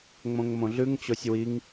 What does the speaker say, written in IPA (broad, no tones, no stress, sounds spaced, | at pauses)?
ŋ͡m õ ŋ m õ ɮ ʉ ŋ t͡ɕ o sʲ w i ŋ